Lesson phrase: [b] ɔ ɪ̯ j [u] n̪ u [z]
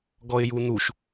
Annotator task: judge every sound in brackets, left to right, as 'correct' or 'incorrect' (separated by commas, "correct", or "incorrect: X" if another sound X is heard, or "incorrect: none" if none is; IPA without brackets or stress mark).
incorrect: ɡ, correct, incorrect: ʃ